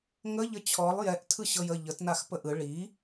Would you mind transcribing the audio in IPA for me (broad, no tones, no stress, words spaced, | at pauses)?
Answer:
ŋə ʎət͡ɕʰɔlˠ jɛʔtʰɯ ɕɤjə ʎətnax pəʔɯ ɭi